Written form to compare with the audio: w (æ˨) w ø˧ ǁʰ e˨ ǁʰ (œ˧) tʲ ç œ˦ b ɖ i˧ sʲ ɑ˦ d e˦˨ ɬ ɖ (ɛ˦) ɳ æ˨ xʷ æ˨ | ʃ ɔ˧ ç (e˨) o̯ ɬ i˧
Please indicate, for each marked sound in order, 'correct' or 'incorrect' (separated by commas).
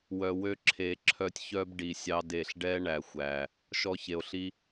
incorrect, correct, correct, correct